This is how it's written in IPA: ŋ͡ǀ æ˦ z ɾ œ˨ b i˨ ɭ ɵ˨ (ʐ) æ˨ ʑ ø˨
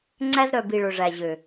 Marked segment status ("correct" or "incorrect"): correct